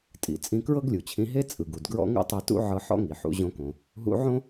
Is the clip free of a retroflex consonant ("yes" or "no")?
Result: yes